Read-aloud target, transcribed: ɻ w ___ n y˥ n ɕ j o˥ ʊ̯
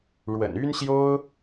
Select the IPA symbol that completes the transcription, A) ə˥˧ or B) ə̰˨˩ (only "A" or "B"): B